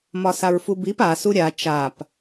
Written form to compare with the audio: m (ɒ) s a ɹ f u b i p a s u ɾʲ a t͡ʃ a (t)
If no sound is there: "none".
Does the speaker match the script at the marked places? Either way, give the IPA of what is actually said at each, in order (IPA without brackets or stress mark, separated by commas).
ɒ, p